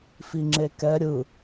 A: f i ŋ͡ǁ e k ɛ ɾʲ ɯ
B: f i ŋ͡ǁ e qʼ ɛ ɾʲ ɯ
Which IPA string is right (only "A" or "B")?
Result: A